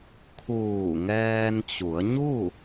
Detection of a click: absent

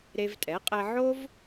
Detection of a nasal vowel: absent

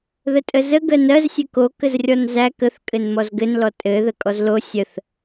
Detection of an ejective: present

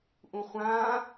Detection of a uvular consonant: present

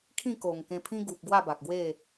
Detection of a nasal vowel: present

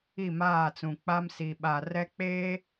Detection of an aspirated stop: absent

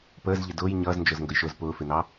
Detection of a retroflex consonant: absent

